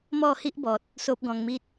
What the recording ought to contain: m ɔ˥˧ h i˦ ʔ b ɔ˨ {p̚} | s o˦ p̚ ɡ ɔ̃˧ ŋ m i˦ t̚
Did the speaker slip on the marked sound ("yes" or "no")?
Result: yes